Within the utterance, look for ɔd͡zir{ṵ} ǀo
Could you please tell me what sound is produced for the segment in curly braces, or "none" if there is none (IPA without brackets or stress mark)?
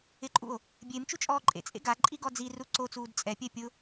u